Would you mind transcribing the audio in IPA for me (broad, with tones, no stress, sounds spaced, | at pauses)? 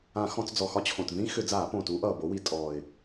ã˧˩˧ x ɔ̃˧˩˧ t͡s d͡z ɔ˨˩ x ɒ˦˨ t͡ɕʰ õ˨˩ t ð ĩ˦ x ʏ˧˩˧ d͡z aː˧˩˧ p õ˨˩ t u˨˦ ʔ ʌː˨˩ b o˨˦ w i˧˩˧ tʼ ɔː˨˩ ɪ̯